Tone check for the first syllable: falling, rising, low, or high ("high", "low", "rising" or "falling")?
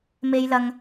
low